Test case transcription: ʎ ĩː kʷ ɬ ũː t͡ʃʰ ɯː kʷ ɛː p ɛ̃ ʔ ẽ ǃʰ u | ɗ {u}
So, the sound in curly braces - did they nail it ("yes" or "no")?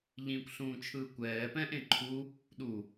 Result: yes